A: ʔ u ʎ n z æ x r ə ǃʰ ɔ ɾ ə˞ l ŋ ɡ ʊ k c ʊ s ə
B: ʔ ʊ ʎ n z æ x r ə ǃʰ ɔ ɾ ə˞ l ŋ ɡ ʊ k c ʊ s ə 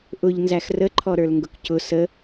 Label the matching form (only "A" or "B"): B